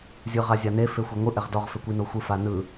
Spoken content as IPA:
zʲ ɯ ʁ a zʲ a n e f e xʷ e ŋʷ ɯ ʔ ɛ ʁ d ɔ ʁ f e kʷ i n o xʷ ɯ f a n ɯ

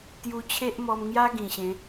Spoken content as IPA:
t̪ j u˧ t͡ɕʰ e˦ ʔ m ɔ˧ m ŋ j a˦ ɡ ĩ˨˩ ɕ ẽ˨˦

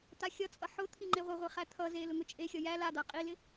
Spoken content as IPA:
t̪ a xʲ ʌ t͡sʼ ʌ ħ ʊ t̪ʰ i ŋ͡ǃ e ʁʷ ɪ ʁʷ i χ æ t̪ʰ ʌ z e l ʊ ŋ ʊ t͡ʃʼ e xʲ ʌ j æ l a d̪ a qʼ i l ɪ

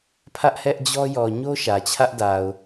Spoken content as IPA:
pʰ ä˦ ʔ h ɛ˦ ʔ d͡ʑ ɔ˦ j ɔ˨ ɲ o˦ ʃ ä˨ t͡ɕʰ ä˦ ʔ d a˨ ʊ̯

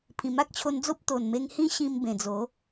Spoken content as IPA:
pʰ ĩ˨˩ m a˦ k̚ t͡ɕʰ o˧ n d͡z o˦ p̚ t̪ o˨˩ n m e˧ ŋ h ĩ˦ ɕ ĩ˧ m b ẽ˨˩ d͡z o˨˦

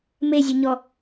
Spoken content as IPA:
m e zʲ ɨ ɲ ɔ

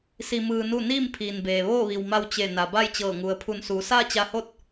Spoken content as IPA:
s i˧ m ɯː˧ n u˥˨ n iː˥˨ m pʰ iː˩ n b eː˩ ʋ oː˥˨ ʋ i˩ w m a˧ w t͡ɕ e˧˩ n a˩ b a˥˨ j t͡ɕ ɤː˧˩ ŋ u˩ ə̯ pʰ u˧˩ n s uː˩˧ s aː˥˨ t͡ɕ a˧ h o˥˨ t̚

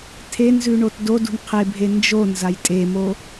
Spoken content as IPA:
tʰ e n z ʉ ɳ o t d o d ṳ n qʰ e bʱ e n d͡ʒ o n z a j tʼ e m o

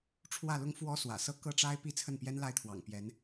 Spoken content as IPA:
ʈ͡ʂʰ w ä˥˩ l ʊ˥ ŋ f w ɔ˥ s w ä̰˨˩ s ɤ˥˧ k ɤ˥˩ ʈ͡ʂ a˥ ɪ̯ p i˥˧ t͡sʰ ə˥˩ n p j ɛ˥ n l a˥˩ ɪ̯ t̪ʰ w ɑ̰˨˩ ŋ p j ɛ˧˥ n

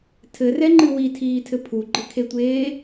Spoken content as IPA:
tʰ ɘ r ɛ ŋ͡ǃ ɨ w i tʰ iː tʰ ɘ pʰ u ɡ͡ǃ ɘ kʰ e tʷ eː

